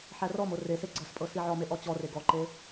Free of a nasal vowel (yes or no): yes